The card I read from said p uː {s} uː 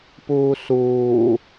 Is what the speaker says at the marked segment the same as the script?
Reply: yes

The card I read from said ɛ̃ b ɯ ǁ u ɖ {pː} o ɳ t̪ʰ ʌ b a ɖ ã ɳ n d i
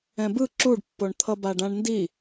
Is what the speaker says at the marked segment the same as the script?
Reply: yes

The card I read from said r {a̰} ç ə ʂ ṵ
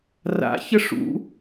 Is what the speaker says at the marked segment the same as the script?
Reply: yes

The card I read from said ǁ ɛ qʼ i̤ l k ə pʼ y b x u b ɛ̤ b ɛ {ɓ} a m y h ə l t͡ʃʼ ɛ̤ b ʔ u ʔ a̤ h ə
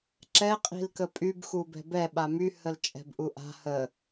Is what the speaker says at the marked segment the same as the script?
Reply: yes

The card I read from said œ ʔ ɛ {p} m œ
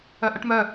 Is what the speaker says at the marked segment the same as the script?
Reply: no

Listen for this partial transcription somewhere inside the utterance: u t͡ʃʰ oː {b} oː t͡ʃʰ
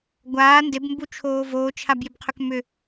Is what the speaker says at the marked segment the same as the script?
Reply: no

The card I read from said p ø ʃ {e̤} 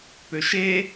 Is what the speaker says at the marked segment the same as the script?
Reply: no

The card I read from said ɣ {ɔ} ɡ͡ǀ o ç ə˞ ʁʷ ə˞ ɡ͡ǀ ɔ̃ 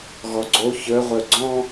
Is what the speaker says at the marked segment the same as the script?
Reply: yes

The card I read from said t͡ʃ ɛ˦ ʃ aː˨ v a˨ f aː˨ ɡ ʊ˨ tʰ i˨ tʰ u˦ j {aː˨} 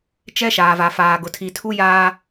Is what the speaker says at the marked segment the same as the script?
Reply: no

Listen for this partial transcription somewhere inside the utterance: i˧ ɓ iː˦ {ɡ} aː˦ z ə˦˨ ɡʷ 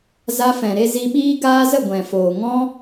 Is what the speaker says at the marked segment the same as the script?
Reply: yes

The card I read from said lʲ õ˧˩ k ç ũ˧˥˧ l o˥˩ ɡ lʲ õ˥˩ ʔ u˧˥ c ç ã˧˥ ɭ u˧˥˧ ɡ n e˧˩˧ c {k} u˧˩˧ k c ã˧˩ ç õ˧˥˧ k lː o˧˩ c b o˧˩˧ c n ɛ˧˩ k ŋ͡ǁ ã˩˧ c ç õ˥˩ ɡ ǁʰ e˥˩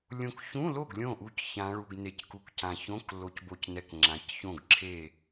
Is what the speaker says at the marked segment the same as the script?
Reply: yes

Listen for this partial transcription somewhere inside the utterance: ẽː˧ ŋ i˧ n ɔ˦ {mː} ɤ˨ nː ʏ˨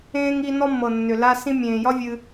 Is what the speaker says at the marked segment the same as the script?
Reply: yes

